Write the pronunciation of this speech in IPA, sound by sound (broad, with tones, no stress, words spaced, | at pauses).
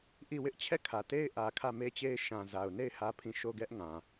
ʔi˦˨wɪ˦ʔ t͡ɕʰɛ˦˨kʰä˨te˦ɪ̯ ʔä˨ kʰä˦˨me˦t͡ɕe˦ɪ̯ ʃã˨za˨ʊ̯ne˦˨ɪ̯ hä˦pʰĩ˦˨ ʃo˦˨ɡɛ˦ʔ ŋã˨